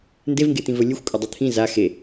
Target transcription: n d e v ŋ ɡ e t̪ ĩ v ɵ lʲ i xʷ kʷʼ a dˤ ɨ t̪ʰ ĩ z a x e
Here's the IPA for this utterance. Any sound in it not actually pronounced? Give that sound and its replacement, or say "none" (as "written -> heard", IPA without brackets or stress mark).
i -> ɨ